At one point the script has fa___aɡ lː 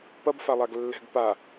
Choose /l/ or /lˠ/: lˠ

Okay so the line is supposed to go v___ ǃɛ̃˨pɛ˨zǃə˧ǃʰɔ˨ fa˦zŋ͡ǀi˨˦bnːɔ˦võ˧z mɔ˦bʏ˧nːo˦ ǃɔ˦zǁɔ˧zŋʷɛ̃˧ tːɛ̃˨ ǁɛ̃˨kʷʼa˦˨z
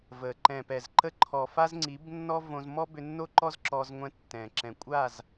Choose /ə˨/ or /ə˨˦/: ə˨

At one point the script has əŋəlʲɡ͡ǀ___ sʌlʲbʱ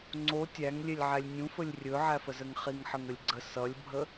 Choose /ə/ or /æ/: ə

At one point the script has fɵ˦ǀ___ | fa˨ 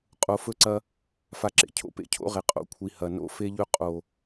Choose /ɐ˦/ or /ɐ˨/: ɐ˦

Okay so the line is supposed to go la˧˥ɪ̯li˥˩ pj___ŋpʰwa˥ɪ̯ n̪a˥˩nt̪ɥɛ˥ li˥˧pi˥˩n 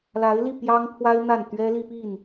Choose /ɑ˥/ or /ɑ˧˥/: ɑ˥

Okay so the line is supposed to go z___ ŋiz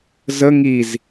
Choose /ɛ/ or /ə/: ə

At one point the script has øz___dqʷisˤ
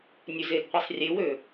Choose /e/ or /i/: e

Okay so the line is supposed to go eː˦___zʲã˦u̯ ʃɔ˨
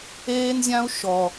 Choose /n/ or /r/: n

